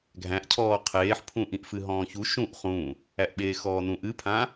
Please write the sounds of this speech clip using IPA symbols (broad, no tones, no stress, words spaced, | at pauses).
ɡʱæ̃ʔcʰɔː qʰeːħpʰũʔĩʔ fɨɦɔ̃ːçu ʃũʔ χũ | æʔɓeːxɔːnũʔ ɨpʰã